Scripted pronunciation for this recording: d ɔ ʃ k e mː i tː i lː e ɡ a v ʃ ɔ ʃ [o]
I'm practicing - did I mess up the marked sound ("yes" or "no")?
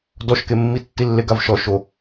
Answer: no